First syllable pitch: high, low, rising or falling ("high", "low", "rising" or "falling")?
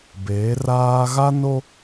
rising